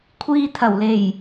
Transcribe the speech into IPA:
kʷʰiː˧t̪ʰɐ˨˩wle˨˩j

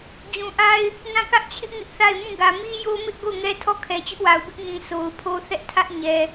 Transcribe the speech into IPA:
d͡ʑũ˨ʔa˦ɪ̯ | nã˦˨kä˦ʔt͡ɕʰɪ˦ʔ ŋɪ˦ʔθa˦˨ɪ̯ mũ˦˨ɡä˨ mi˦jo˦mɪ˦ʔ ɡo˦˨ʊ̯ŋɛ˦tʰɔ˦˨ kʰɛ˨t͡ɕʊ˦ʔwa˨ʊ̯ bɪ˦ʔɲĩ˨ so˨ʊ̯pʰo˦θɛ˦ʔ tʰä˦ʔ ɲɛ˨

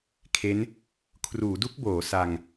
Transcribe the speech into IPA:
kʰe˦˥n | kʰruː˩˦du˦˥k̚boː˩˦ sa˧ŋ

